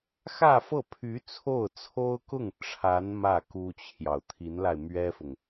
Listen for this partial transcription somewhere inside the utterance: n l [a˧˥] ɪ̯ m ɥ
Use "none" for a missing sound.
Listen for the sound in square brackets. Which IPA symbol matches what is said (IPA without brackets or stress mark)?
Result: a˧